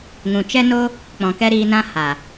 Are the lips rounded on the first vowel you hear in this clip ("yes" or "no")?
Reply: yes